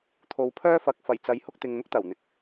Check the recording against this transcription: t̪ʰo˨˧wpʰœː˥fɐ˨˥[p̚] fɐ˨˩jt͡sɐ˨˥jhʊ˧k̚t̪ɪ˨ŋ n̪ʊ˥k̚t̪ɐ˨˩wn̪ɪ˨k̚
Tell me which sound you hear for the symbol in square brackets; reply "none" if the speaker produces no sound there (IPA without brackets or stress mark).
k̚